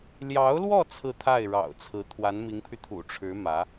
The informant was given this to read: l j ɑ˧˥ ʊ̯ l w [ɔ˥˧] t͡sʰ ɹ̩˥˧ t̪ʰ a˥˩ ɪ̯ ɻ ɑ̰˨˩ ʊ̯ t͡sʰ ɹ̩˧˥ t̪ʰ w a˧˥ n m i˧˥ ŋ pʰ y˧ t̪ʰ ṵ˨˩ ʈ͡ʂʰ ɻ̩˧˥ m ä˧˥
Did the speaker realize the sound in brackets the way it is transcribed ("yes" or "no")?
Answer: yes